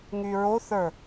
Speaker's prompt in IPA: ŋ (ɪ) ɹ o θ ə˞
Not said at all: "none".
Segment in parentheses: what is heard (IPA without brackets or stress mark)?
y